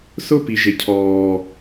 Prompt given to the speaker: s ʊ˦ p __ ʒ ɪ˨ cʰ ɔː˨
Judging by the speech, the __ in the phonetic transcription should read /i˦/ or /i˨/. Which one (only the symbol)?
i˨